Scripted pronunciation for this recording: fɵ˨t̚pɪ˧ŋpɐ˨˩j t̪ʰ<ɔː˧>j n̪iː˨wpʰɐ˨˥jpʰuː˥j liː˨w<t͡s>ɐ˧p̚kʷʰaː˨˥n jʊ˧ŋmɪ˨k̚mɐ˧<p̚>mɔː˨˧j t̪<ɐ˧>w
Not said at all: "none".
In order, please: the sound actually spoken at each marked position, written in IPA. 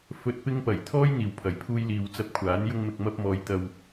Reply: ɔː˥, t͡s, p̚, ɐ˧

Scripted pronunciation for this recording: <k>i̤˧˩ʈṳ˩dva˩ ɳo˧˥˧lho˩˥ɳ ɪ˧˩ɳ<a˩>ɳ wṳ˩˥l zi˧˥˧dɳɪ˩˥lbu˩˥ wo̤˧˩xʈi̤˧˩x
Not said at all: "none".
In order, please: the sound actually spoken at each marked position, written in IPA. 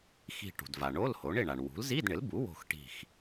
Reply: x, a˩

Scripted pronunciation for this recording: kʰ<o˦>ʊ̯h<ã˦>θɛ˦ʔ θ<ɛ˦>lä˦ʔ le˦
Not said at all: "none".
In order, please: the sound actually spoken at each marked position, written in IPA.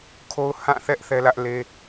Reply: o˦, ã˦˨, ɛ˦

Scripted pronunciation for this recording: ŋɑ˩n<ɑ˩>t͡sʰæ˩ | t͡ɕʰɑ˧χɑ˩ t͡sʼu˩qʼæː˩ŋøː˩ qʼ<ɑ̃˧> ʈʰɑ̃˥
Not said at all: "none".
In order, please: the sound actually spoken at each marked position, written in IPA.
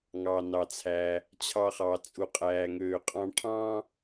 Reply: ɑ˩, ɑ̃˧

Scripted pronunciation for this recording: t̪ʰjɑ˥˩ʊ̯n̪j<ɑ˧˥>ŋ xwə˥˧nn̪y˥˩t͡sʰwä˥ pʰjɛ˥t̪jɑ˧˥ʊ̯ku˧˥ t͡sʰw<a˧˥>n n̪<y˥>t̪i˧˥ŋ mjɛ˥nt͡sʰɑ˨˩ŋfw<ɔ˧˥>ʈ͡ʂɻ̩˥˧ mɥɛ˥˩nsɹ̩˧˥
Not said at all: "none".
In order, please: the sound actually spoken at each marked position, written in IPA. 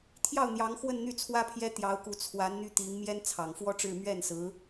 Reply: ɑ˧˥, a˧˥, y˥, ɔ˥

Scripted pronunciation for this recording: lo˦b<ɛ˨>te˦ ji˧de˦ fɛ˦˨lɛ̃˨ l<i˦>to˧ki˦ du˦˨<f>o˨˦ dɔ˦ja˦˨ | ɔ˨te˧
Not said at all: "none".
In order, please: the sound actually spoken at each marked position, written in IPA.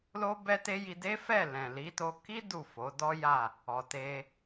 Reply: ɛ˦, i˨˦, f

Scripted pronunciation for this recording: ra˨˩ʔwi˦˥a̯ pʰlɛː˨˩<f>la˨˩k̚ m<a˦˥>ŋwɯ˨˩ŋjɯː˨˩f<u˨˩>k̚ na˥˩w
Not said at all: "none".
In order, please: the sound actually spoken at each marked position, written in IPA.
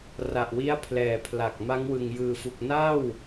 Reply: pʰ, a˦˥, u˨˩

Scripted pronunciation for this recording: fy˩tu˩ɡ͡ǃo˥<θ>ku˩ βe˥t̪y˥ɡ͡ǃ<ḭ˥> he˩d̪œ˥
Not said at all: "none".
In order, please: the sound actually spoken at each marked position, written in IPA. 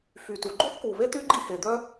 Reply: θ, ḭ˥

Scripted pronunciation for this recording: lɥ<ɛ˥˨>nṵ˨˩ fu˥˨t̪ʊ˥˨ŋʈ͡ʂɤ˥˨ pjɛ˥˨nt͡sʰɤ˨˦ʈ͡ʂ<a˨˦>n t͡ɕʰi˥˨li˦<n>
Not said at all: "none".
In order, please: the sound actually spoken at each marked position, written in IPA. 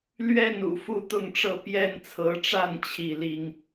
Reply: ɛ˥˨, a˥˨, ŋ

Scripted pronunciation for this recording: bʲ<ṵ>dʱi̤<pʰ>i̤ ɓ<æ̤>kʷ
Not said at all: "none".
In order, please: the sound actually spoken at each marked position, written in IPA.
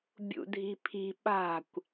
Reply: ṵ, pʰ, a̤

